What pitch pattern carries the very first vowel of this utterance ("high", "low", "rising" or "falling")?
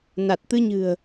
low